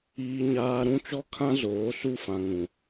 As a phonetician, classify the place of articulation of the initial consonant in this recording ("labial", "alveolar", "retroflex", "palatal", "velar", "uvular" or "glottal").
palatal